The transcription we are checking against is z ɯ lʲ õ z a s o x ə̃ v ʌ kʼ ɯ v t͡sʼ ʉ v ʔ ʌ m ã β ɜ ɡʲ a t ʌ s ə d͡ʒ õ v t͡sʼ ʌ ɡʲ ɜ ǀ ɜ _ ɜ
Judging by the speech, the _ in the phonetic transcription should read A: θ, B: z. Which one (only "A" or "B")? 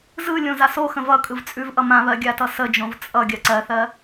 A